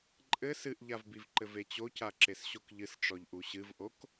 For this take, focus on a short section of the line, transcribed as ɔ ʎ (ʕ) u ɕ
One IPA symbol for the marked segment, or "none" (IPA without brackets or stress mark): ʔ